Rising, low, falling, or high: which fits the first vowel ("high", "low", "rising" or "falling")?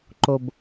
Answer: low